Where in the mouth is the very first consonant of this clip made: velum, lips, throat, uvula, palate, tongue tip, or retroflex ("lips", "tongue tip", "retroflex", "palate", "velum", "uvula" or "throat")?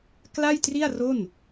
velum